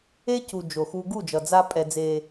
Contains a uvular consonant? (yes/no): no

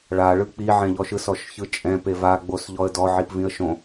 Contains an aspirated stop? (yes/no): no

